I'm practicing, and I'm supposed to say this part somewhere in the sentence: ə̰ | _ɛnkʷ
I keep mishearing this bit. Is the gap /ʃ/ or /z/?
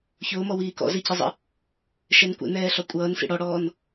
ʃ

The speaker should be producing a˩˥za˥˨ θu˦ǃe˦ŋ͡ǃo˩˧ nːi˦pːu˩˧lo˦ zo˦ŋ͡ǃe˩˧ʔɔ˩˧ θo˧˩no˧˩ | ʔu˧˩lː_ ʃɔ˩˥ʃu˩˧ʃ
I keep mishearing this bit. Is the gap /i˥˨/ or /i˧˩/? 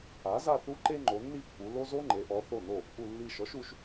i˧˩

